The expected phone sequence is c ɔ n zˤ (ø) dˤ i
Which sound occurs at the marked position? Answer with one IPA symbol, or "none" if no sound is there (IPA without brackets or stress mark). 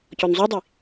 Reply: u